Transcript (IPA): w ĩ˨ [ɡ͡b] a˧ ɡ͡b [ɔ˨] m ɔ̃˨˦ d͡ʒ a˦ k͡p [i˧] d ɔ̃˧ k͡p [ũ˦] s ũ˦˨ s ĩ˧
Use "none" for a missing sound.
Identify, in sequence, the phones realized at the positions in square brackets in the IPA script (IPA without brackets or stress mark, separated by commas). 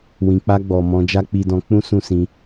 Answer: k͡p, ɔ˨, i˧, ũ˦